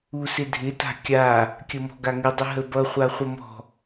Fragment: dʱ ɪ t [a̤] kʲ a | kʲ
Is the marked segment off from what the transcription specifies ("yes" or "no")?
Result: no